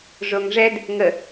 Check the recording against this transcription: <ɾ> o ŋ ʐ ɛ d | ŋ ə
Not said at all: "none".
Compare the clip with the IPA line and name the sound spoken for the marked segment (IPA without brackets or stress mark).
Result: ʐ